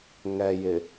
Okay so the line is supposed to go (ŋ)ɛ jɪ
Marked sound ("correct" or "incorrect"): correct